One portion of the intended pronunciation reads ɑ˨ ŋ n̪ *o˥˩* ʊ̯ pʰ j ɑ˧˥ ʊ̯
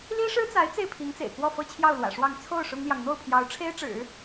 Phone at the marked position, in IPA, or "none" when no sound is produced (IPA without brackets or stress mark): o˥˩